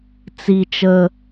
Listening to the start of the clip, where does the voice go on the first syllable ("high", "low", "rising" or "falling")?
falling